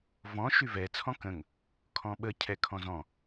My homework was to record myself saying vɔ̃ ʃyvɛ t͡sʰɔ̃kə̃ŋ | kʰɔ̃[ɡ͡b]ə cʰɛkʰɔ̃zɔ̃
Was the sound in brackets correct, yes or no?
no